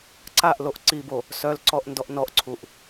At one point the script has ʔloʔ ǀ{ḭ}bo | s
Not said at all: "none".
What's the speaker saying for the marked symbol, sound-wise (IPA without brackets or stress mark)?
i